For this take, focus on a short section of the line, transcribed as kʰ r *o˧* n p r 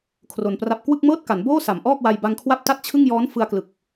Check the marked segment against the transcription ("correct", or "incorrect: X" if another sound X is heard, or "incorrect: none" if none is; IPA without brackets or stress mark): correct